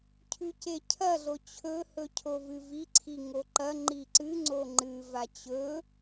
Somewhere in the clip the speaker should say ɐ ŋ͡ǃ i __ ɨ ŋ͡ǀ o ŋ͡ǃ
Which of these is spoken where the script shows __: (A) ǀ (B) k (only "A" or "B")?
A